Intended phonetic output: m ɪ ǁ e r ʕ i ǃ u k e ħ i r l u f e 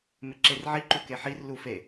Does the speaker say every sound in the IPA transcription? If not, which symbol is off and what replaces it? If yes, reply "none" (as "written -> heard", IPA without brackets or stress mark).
none